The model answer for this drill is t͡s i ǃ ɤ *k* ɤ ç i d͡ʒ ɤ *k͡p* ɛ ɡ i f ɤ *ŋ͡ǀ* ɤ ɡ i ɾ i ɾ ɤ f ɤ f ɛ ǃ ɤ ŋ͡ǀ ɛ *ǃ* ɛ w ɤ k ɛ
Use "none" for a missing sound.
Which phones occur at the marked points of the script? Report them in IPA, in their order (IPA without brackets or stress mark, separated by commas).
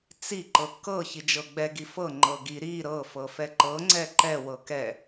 k, ɡ͡b, ŋ͡ǃ, ǃ